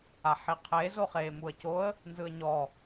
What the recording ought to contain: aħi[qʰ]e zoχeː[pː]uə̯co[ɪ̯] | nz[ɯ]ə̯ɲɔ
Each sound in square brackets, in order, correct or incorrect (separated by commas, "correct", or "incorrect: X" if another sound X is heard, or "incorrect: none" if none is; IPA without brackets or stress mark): correct, incorrect: m, incorrect: ə̯, correct